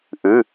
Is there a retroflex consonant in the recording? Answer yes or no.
no